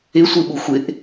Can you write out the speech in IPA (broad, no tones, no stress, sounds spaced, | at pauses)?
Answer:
ɪ sʷ ɨ ɓ u xʷ ɪ ʔ